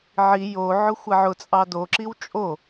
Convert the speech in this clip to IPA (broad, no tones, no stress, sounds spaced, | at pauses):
ʕ i j o ʕ ʊ xʷ a ʕ ʊ t͡sʼ ɑ d o ǁ i w t͡ʃʼ o